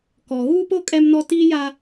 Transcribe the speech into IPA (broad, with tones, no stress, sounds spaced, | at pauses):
k ɔ˨ ɣ uː˦ p o˦ kʼ ɛ˦ m n ɔ˦ t iː˦ j a˦